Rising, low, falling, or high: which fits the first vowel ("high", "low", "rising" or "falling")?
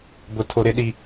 high